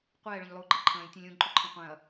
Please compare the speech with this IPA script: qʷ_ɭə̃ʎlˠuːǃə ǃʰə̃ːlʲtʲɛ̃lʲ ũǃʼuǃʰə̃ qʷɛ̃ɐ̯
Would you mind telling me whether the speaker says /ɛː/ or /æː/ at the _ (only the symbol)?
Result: ɛː